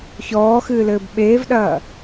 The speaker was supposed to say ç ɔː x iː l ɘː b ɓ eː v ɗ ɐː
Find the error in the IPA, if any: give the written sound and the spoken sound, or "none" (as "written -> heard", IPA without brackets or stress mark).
iː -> ɨː